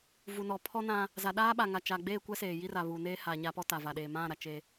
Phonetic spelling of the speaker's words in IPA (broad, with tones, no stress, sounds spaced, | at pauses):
v u˨ n ɔ˨ pʰ ɔ˦ n ã˦ | z a˨ ɗ aː˦ ɓ a˨ ŋ a˨ t͡ʃ a˨ ɡ͡b eː˦˨ kʷ ɛ˦ s eː˨ j i˦ r a˨ β uː˨ n eː˦ h a˨ ɲ a˦ p ɔ˦ t a˨ v a˨ ɗ eː˨ m ã˦˨ ɾ a˨ t͡ʃ e˦